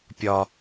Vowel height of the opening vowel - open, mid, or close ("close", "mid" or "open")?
open